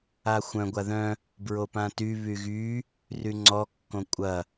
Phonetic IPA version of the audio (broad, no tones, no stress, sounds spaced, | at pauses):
a xʷ œ̃ ɡʷ a ð œ̃ | b ɹ o p ã t y β y ɣ y | r y ŋ͡ǀ ɔ kː õ kʷʼ ɐ